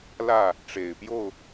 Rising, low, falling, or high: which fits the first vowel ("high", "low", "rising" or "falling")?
falling